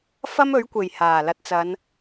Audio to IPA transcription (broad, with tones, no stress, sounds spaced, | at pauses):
f ɐ˥ m ɵ˨˥ ɥ kʷ e˨˩ j h aː˨˩ l ɐ˨˥ t̚ t͡s ɐ˨˧ n